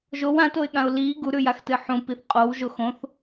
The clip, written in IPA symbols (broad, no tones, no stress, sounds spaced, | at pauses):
ʒ o w ã t o ɪ̯ ɠ ã ʊ̯ l i ɡ u ɾ ʉ j a x t ɨ ħ ũ p i θ qʼ o w ʒ o x õ θ